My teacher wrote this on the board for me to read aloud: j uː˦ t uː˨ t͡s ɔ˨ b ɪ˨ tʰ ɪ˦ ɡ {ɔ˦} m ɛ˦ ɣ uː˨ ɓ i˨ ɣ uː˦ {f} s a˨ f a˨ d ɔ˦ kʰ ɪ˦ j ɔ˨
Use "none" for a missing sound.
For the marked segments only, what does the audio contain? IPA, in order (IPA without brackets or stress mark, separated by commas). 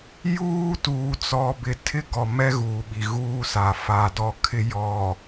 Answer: ɔ˨, none